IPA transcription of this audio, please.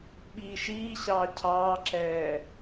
ɓ iː ʃ iː ɕ ɑː cʰ ɑː ǁ ɛː

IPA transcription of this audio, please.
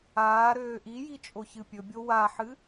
aː ɾ øː ʔ i j i t͡ʃʼ o ç ɨ pʲ ɵ bʲ o w a ħ ɨ

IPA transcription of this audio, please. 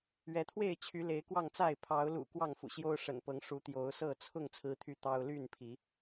ɥ ɛ˨˦ t̪ʰ w e˥˨ ɪ̯ t͡ɕʰ y˨˦ l e˨˦ ɪ̯ k w ɑ˥˨ ŋ t͡s a˥˨ ɪ̯ pʰ ɑ˨˦ ʊ̯ l ṵ˨˩ k w ɑ˥˨ ŋ f ṵ˨˩ ɕ j o˦ ʊ̯ ʂ ə̰˨˩ n p ɤ˨˦ ŋ ʂ u˨˦ t̪ j o˨˦ ʊ̯ s ɤ˥˨ t͡sʰ ʊ˥˨ ŋ t͡sʰ ɹ̩˦ t̪ʰ y˥˨ t̪ ɑ˦ ʊ̯ l y˥˨ n pʰ i˨˦

